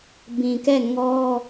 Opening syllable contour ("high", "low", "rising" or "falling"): low